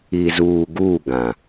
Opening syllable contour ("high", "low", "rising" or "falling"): low